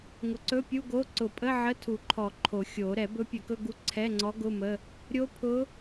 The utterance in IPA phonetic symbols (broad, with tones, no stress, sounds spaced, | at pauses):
ŋ ʊ˨˩˦ ǀ ɵ˧˥˧ pʲ u˧˥˧ ɡ o˧˥˧ ǀ ʊ˨˩˦ pʼ ə˧˥˧ ʕ ə˧˥˧ tʰ u˨˩˦ ǃʰ ɔ˨˩˦ ǃʰ o˨˩˦ xʲ o˨˩˦ ɾ ɛ˨˩˦ b ɵ˧˥ pʲ ɵ˨˩˦ k ɵ˧˥˧ ɡ u˧˥ ǀʰ ɛ˧˥˧ ŋ͡ǀ ɔ˧˥ ɡ ʊ˧˥˧ m ə˧˥˧ | ɾʲ o˧˥ pʰ ʊ˧˥